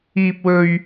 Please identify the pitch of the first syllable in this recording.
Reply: high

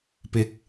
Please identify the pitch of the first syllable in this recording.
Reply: rising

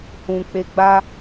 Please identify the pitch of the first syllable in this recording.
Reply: low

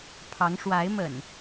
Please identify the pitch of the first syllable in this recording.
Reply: rising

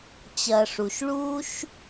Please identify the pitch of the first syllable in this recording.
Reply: low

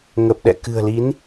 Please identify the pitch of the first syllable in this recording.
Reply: low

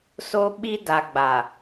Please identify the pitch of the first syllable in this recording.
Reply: high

